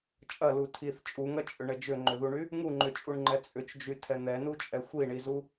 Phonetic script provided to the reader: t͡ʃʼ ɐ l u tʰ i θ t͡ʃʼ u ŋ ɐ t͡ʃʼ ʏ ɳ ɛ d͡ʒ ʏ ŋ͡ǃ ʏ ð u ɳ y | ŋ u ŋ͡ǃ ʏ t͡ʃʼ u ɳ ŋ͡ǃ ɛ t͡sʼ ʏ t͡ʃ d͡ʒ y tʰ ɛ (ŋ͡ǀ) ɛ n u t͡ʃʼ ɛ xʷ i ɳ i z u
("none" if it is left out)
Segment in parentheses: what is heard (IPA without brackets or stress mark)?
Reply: n̪